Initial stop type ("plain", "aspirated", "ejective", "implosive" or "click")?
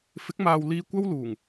plain